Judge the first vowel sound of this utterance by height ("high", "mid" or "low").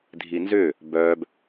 high